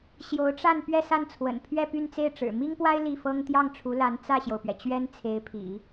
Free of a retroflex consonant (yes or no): no